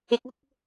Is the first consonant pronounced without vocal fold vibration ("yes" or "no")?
yes